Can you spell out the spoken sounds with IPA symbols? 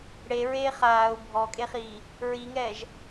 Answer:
ɽ e ɹ eː χ aː u̯ bʱ ɔ kʼ e χ iː | ɹ i ŋ ɛː ʒ

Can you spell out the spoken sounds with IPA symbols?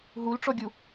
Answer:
ɦ u l ʈ͡ʂ ɔ ɡʲ u

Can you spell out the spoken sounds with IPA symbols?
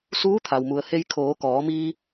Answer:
s uː˧˥ t̪ʰ a˩ w m u˩ ə̯ h e˧ j kʰ oː˩˧ k ɔː˩˧ m iː˧

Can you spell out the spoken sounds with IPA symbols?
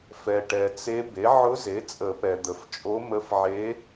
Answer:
f ɛ˨ ʈ ɛ˨ t͡s e˧˥ b e˩˥ ʕ ʊ˧˥ z e˩˥ t͡sʼ ə˨˩˦ p ɛ˨ d̪ ə˨ f t͡ʃʼ o˧˥ m ə˧˥ f ʕ e˧˥

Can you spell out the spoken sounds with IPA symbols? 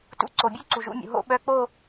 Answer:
t ṵ˧ ǀ o˩ bʲ u˥˧ ǀ u˩ ʒ ṵ˧ mʲ ṵ˩ ɦ o̰˥˧ ɓ œ˧˥˧ k͡p o˥˧

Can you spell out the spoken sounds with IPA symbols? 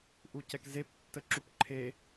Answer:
ʔ u c ɛ k z e p tː ə ǁ u p ǃʰ e

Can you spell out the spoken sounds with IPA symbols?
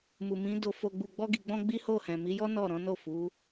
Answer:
m u˨ m ĩ˨˦ d o˧ f o˧ ɡ͡b u˧ ɡ͡b ɔ˦ ɡ i˧ ɡ͡b ɔ̃˦ ɡ͡b i˦ h o˦˨ h ɛ̃˨ m i˨˦ j ɔ˦ n ɔ˦˨ ɾ ɔ̃˨˦ n o˦˨ f u˨˦

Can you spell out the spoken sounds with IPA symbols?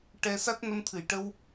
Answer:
ʈ ɛ˧ s a˦˥ t̚ n ə˧ m t̪ʰ ɨ˨˩˨ j ʈ ə˧ w

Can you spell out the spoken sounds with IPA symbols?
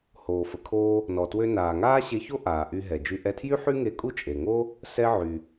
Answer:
h oː˩ f ə˩ kʰ oː˧ | n ɔ˩ t w ø˧ n aː˩ ŋ aː˥ ɕ e˧ ç o˥ ʔ aː˩ ʔ y˧ ɦ ɛ˩ d͡ʒ y˧ ʔ ɛ˧ tʰ j y˥ ħ y˥ ŋ e˧ kʼ u˥ t͡ʃʼ e˩ ŋ o˥ | s ɛ˧ ʕ y˩

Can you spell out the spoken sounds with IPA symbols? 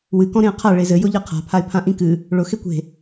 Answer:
w ɨ k ɔ̃ ɾ ẽ ə̯ qʰ a ɭ e z ɘ j ʊ ʎ ɘ qʰ a̤ pʰ a ɪ̯ pʰ ã ʔ ĩ k ɨ | ɭ ʊ x e kʷ e̤

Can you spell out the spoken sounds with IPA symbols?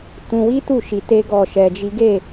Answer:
t ũ˧ w i˦ t u˦˨ ʃ i˧ t e˦ ɡ ɔ˦˨ ʃ ɛ˧ d͡ʒ i˦ ɡ e˦˨

